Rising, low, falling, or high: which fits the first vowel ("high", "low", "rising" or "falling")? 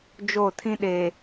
falling